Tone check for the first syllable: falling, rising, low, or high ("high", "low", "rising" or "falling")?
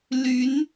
rising